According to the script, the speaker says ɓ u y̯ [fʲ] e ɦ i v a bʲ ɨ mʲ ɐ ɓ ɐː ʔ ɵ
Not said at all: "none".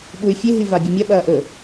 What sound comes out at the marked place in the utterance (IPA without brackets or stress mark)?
fʲ